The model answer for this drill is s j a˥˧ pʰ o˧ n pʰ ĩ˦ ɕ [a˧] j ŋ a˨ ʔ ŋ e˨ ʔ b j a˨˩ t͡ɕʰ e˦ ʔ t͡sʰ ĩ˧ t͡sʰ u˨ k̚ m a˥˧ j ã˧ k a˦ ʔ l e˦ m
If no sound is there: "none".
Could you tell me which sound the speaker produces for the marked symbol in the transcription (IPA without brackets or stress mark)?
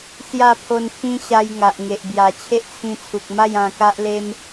a˧